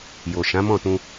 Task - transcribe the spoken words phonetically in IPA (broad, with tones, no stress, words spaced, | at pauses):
jo˨ʃã˨˦mɔ̃˦˨tũ˧